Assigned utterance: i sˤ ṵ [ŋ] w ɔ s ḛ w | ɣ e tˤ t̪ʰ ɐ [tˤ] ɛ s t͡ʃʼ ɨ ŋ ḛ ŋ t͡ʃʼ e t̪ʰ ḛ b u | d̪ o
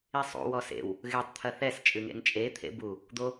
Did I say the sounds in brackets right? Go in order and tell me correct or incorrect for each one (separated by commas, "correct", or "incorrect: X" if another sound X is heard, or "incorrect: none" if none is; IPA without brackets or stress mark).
incorrect: none, incorrect: θ